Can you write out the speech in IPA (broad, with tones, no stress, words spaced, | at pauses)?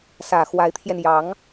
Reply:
sä˨˩xwa˧˥ɪ̯t̪ʰjɛ˧njɑ˧˥ŋ